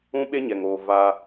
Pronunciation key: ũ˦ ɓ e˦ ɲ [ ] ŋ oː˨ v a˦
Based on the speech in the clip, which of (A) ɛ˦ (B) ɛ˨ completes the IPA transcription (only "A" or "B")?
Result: B